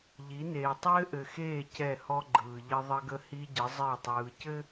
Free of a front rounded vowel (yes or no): yes